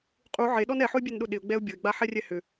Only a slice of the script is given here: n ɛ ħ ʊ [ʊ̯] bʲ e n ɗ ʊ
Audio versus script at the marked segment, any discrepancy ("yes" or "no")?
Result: yes